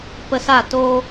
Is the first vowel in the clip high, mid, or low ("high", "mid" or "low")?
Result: mid